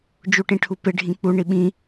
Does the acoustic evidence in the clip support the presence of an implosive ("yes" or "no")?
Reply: yes